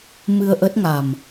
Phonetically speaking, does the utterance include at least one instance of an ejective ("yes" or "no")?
no